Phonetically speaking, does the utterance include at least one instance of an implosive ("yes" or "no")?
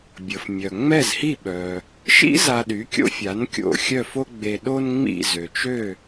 yes